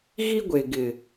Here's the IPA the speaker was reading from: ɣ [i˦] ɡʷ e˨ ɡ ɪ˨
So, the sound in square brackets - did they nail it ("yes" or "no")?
yes